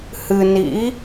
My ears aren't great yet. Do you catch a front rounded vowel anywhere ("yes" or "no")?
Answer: no